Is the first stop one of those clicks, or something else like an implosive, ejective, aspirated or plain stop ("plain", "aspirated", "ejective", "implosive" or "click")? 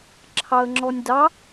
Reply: click